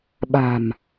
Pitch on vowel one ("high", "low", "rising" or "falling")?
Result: low